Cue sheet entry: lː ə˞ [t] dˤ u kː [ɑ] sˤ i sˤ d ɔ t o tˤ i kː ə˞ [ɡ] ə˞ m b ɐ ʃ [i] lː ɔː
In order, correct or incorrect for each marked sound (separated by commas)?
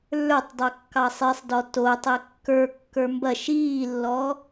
incorrect, correct, incorrect, incorrect